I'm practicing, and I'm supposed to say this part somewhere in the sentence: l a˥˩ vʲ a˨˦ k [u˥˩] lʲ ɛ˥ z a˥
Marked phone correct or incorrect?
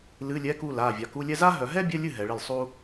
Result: incorrect